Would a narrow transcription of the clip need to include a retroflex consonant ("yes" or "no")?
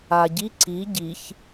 no